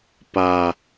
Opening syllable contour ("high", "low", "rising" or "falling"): high